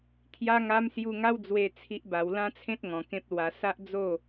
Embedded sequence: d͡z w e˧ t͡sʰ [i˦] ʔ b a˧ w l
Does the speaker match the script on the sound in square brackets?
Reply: yes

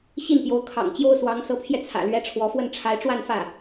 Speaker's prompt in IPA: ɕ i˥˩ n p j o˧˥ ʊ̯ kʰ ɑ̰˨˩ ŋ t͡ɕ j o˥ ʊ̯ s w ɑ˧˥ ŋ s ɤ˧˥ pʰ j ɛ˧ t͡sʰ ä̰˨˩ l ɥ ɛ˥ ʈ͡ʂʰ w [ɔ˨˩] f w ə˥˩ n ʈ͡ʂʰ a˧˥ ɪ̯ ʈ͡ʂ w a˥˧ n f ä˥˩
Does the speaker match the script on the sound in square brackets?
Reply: no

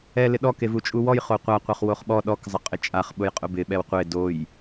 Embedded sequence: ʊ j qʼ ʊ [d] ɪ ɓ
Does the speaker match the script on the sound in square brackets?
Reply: no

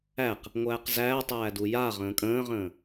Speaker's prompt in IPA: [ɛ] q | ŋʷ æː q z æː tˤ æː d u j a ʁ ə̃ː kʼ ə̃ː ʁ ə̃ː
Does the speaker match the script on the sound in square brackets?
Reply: no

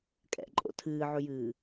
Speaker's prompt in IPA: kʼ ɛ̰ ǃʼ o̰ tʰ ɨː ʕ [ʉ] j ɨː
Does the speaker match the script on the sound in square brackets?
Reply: yes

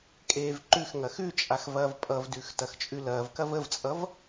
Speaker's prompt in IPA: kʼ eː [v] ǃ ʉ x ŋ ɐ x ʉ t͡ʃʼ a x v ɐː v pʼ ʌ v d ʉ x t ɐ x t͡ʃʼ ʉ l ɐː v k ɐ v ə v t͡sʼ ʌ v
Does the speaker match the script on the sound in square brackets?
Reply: yes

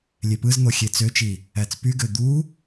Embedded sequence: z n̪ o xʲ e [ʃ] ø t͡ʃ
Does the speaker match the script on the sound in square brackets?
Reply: no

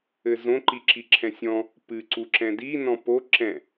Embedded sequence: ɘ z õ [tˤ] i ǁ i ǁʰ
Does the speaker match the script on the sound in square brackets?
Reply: no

